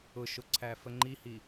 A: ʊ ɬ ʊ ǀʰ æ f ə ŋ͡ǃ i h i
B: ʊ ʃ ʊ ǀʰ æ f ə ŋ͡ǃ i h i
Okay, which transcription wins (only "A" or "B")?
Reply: B